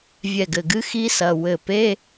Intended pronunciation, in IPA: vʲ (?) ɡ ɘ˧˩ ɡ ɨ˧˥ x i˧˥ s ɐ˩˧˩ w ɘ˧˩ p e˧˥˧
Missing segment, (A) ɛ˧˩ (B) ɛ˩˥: A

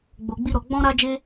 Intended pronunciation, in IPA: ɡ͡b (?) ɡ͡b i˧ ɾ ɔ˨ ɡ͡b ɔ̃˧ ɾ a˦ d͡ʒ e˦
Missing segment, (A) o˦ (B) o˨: B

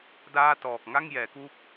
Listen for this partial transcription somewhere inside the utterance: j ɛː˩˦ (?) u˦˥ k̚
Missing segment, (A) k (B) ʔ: A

